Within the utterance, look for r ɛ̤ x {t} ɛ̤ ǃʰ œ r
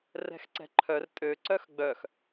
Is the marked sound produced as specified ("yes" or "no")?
no